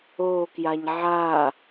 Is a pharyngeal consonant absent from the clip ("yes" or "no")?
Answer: no